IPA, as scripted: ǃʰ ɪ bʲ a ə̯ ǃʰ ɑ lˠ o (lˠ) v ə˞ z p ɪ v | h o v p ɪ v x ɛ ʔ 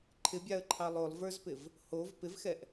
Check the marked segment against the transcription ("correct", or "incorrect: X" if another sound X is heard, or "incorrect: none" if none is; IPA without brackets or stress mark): correct